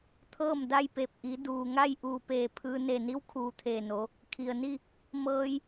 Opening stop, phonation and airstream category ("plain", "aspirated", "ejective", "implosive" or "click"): aspirated